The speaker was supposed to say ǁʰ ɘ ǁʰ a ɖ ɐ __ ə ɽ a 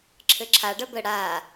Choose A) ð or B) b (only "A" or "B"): B